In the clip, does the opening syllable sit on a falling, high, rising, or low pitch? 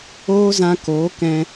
high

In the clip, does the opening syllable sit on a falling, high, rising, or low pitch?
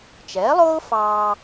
rising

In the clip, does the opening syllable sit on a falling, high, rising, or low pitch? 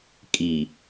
low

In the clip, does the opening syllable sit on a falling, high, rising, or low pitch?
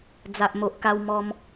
low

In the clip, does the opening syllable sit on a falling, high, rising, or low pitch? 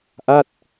falling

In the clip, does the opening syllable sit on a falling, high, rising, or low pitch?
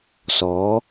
rising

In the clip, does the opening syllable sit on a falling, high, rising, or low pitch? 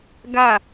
falling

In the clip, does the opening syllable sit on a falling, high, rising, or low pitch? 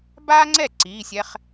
high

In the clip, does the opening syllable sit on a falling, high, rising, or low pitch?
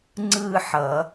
falling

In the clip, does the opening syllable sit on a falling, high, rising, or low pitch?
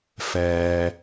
low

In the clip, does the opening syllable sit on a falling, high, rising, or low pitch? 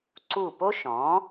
falling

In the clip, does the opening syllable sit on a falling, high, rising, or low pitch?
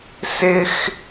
high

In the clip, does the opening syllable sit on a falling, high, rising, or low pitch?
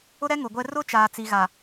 high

